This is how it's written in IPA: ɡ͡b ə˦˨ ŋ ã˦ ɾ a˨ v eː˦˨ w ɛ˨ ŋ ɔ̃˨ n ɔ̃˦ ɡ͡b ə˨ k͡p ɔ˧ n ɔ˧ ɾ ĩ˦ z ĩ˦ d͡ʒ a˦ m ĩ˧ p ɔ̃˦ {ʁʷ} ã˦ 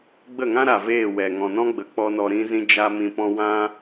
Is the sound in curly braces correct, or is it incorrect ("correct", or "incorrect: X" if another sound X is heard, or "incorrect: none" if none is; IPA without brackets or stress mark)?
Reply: incorrect: w